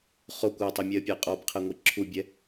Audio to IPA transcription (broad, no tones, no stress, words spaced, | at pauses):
χokʷ ɔtˤimʲɛə̯pʲəɪ̯ qʼɔbqʰɛŋʷi ǁʰubʲɛ